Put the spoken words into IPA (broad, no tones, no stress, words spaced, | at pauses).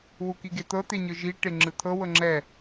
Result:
wukiɡet̪ɤ t̪eɲɯʒi ʈeŋ͡ǁɯt̪ʰɤ wɤŋ͡ǁɛ